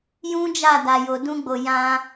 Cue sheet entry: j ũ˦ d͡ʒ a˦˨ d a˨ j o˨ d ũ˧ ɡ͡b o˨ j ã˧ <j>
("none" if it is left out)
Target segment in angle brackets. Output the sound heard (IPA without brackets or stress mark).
none